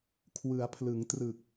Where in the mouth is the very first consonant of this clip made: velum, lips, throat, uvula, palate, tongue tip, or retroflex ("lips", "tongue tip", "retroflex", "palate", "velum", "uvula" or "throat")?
velum